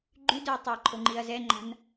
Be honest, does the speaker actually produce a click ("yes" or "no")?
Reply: yes